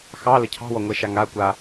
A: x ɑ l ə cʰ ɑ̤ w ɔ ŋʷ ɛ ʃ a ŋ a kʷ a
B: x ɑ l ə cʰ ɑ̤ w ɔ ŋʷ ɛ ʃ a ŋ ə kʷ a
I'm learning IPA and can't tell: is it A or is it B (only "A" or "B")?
A